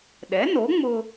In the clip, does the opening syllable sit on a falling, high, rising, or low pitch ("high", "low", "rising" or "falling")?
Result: rising